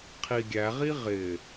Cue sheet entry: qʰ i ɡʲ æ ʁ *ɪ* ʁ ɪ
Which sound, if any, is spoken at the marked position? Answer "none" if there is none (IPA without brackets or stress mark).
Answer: i